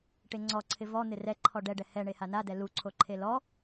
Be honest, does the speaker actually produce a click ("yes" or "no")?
yes